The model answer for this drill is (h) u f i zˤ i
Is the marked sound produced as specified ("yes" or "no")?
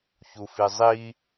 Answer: no